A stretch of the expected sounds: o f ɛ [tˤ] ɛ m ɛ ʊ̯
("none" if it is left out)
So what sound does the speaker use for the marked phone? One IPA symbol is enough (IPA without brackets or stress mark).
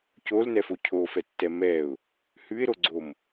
tː